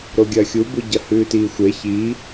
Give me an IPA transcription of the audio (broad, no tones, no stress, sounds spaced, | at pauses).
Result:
ɾ o ɡʲ ɐː xʲ u b u ɟ ɐ h ʉː t iː xʷ e ç i